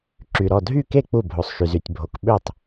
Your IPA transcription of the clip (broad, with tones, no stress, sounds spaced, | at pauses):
ǁ y˨ ɾ ɔ˥˩ dʱ y˥˩ k e˥˩ k͡p u˥˩ bʱ o˨ sˤ ʃ y˨ z y˨ tʲ bʱ o˨ k ɓ ø˥˩ tˤ